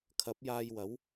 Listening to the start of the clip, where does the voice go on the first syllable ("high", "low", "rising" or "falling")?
rising